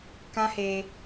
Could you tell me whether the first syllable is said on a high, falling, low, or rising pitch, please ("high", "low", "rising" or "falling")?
high